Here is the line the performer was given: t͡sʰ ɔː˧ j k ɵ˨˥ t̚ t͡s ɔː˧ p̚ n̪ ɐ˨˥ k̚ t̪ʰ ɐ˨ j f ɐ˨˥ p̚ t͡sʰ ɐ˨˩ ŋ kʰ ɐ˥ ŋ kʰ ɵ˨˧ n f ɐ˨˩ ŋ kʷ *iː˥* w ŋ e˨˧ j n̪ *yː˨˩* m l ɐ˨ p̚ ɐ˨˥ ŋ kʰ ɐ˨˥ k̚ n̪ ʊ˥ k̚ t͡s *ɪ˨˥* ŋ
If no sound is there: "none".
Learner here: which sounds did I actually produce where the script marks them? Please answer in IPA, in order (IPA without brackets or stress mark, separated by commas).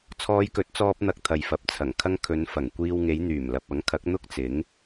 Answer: iː˧, yː˨˩, ɪ˨˥